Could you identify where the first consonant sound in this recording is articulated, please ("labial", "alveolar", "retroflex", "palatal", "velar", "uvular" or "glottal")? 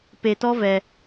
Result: labial